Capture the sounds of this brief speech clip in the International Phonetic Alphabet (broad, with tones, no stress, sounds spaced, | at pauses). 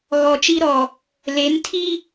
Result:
ɣ ɔ˨ t͡ʃ i˦ ɾ ɔ˨ | l e˨˦ n tʰ i˦